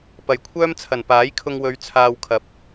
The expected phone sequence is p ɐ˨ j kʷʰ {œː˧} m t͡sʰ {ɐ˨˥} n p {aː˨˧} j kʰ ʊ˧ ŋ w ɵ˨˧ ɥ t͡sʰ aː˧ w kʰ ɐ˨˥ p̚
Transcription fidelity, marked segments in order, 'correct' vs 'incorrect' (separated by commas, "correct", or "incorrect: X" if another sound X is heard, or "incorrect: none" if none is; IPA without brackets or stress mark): incorrect: œː˥, incorrect: ɐ˨˩, incorrect: aː˨˥